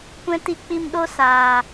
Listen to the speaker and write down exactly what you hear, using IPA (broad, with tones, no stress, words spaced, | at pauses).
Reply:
kʷɛ̃˦ti˦k͡pi˦m ɗo˧ saː˨